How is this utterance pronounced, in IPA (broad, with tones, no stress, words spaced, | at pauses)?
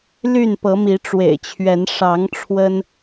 ly˥˨npɤ˨˦mi˨˦ ʈ͡ʂwḛ˨˩ɪ̯t͡ɕʰɥɛ˨˦n ʂɑ˨˦ŋ ʈ͡ʂʰwə˦n